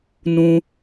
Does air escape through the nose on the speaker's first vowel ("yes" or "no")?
yes